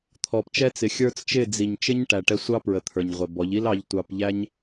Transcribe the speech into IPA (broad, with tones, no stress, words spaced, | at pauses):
t̪ʰɔ˨pt͡ʃɛ˧t͡sɪ˨xʲə˞˧t͡s t͡ʃɪ˦˨d͡zi˨ɲ t͡ʃɪ˦ɲ ʈæ˨ʈɛ˧sʷɑ˦pɹə˨ t̪ʰə˞˨ɲʁʷɛ˨bɔ˨˦ʎ i˦lɑ˧ʎ tʷɑ˧pʎæ˦ɲ